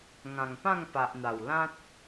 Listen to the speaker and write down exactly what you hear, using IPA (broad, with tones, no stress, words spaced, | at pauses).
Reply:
ŋã˨˩ŋpã˥˧ŋpa˨ʔn̪a˨˩w lã˦t̚